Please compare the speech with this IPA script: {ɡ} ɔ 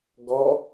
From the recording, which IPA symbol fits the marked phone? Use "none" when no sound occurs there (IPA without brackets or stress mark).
ɡ